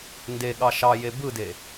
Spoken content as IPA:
n d e ɠ ɑ ʃ ɑ j e b ɯ d e

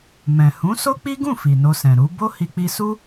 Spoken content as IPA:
m ɛ̃˨ h ũ˨˦ s o˦ k͡p i˦ ɡ ũ˦˨ f i˨ n o˧ s ɛ̃˨ ɾ u˨˦ b o˦ h i˧ k͡p i˧ s u˦

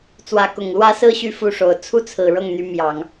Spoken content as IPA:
t͡s w ä˧˥ k ʊ˨˩ ŋ l w ä˥ s ɹ̩˥˧ ɕ y˥˧ f u˥˩ ʂ o˨˩ ʊ̯ t͡sʰ u˥ t͡sʰ ɹ̩˨˩ ɻ ɤ˥˩ ŋ n̪ y˧˥ m j ɑ˨˩˦ ŋ

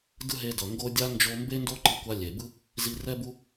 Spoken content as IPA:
d ɯ˦ ɦ e˧ d ʌ˨ ŋ ɡ o˧ dʲ a˦ n d͡ʒ o˧ m b e˦ n d o˦ ǃ i˧ kʷ a˧ lʲ e˨ b ɯ˦ | z i˧ r ɛ˦ b u˦

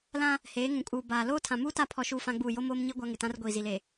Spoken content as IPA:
l ã˦ | h eː˨˦ ŋ ũ˨ kʼ uː˨ b aː˨ l oː˦ tʰ ã˨ m uː˦ t a˦˨ pʰ ɔ˦ ʃ uː˦ f ã˦ ɡ͡b uː˦˨ j o˦ m oː˦ m ɲ i˦ ɡʷ a˦ ŋ ɪ˨ t ã˦ r ɡʷ iː˨ z i˨ l e˨

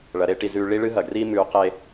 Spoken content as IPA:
ɭ ɐ˨˦ ɾ e˦ ʈ i˧ z ʉ˧ ɭ i˦ ɭ ɨ˦ ɦ ɐ˨ ɡ r iː˦ m ʉ˨˦ q e˧

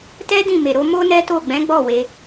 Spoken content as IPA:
t ɛ˦ d ĩ˦˨ m e˨ ɾ o˨˦ m o˦ n ɛ˦ t o˦˨ ɡ͡b ɛ̃˨˦ ɡ͡b ɔ˦˨ w e˧

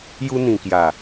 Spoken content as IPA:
j u˧ n̪ ĩ˨˩ k j a˨˩

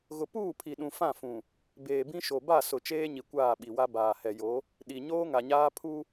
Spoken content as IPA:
ɣ ʊ˨ p uː˦˨ pʰ i˨ ɗ ũ˨ f ã˦˨ f ũ˨ | b eː˨ b ĩ˦ ʃ o˨ b a˦˨ s ʊ˨ t͡ʃ eː˦ ɲ i˨ kʷ aː˦˨ ɓ i˨ w a˦ b aː˨ h ɛ˨ j o˨˦ | ɗ i˨ ɲ oː˦ ŋ a˨ ɲ aː˦ pʰ u˦

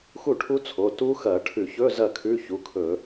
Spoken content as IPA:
x u˥˩ ʈʰ u˦˥ t͡sʰ o˩˧˩ t u˦˥ x ɐ˧˩˧ ʈʰ ʉ˧˩˧ ç ɵ˧˥˧ z ɐ˥˩ kʰ ʉ˧˥˧ ç u˩˧˩ kʰ ɵ˧˩˧

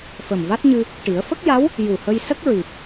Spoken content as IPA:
f ə˨˩ m v a˦˥ t̚ ɲ ɨ˧ | ʈ i˨˩˦ ə̯ f ə˦˥ k̚ j a˧˥ w | j u˨˩ h ə˧ j s ə˦˥ k̚ ɹ i˨˩ p̚

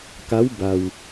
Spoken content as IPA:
k a˧˥ w b a˧ w

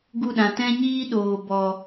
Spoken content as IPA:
ɡ u˦˨ ɗ ã˨ t ɛ̃˦ ɲ iː˦ ɗ oː˨ b ɔ˨

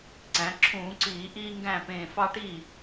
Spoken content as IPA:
ǀ æ̃˩˧ ǁʰ ũː˧˩˧ ǀ iː˧˩˧ ʔ iː˦ ŋ ɡ æ̃˥˩ p ẽː˧˩ f ɑ˦ ʈ iː˥˩

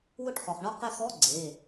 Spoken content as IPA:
w ʊ˥˧ ʈ χ ɔ˩ χ ɳ ɔ˥˧ q ɪ˥˧ x ɔ˧˥˧ ɡ͡ǀ e˩˧˩

